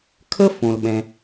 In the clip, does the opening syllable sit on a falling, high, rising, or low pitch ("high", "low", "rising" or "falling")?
high